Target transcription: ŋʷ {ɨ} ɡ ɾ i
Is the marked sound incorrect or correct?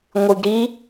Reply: correct